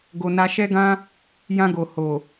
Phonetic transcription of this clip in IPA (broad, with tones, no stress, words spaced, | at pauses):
ɡo˧na˦ ʃɛ˦ɡã˦ | jã˧ɡo˨ ho˨